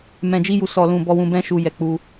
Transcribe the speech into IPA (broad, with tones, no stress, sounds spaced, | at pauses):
m ɛ̃˨ d͡ʒ i˧ j u˨ s ɔ˨ l ũ˨ b ɔ˧ w ũ˧ b ɛ̃˦ ʃ u˧ j ɛ˧ k͡p u˧